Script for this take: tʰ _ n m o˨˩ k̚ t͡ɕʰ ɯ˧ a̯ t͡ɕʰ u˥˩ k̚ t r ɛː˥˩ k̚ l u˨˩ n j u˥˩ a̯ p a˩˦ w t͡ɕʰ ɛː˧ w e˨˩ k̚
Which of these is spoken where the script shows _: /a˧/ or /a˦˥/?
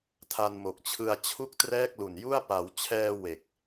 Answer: a˧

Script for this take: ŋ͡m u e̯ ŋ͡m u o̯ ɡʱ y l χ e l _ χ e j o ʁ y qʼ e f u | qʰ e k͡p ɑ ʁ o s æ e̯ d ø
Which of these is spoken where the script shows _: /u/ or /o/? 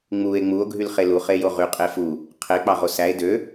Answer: u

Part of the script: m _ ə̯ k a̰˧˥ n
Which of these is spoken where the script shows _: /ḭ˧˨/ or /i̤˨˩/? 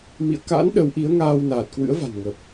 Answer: ḭ˧˨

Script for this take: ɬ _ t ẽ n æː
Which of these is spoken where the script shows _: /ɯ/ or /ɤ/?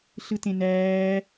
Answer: ɯ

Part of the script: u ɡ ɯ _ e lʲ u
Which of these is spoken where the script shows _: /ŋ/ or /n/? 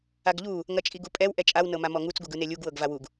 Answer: n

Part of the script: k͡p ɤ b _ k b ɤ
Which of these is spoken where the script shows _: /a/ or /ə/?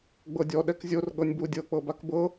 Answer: a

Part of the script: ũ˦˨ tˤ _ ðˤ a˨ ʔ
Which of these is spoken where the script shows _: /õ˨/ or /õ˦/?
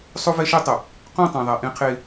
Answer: õ˨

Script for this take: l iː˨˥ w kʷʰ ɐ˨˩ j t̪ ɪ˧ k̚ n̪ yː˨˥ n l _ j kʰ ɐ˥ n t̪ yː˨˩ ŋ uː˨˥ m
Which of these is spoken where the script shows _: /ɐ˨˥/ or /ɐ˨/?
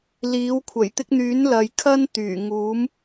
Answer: ɐ˨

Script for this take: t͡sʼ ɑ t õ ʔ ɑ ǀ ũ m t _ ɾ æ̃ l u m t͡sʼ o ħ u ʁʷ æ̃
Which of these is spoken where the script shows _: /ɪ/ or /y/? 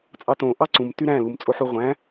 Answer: y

